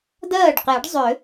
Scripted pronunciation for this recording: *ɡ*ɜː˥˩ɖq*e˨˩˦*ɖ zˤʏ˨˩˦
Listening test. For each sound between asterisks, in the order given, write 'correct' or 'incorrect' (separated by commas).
incorrect, correct